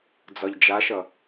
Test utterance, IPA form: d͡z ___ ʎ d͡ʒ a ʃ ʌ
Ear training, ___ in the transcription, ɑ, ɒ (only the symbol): ɒ